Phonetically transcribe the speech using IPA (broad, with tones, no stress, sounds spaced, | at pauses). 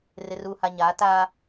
r ɪ˨ r uː˨ h a˨ ɲ aː˨˦ t aː˦